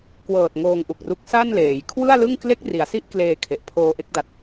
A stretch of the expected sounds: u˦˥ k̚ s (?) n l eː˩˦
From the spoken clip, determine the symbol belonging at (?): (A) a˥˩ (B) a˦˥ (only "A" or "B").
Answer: A